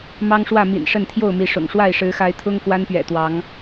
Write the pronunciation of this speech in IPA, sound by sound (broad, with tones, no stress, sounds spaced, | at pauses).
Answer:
m ɑ˦ ŋ ʂ w ä˥˨ m ḭ˨˩ n ʂ ə˥˨ n t̪ʰ j o˥˨ ʊ̯ m i˨˦ ʂ ʊ̰˨˩ ŋ ʂ w a˥˨ ɪ̯ ʂ ɻ̩˨˦ x a˨˦ ɪ̯ t̪ʰ ʊ˦ ŋ k w a˦ n p ɥ ɛ̰˨˩ t̪ w ɑ˨˦ ŋ